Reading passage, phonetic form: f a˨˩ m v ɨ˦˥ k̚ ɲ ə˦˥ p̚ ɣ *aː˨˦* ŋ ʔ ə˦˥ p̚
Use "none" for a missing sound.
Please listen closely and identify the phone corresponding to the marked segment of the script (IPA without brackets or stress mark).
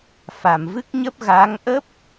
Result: aː˨˦